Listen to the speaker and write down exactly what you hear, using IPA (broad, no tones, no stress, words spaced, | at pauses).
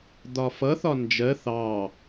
d̪ɒfʌ θɒnd͡ʒɜ θɑ